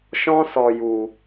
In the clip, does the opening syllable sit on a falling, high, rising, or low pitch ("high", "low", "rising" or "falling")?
high